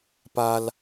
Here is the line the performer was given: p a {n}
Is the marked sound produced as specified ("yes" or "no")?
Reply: no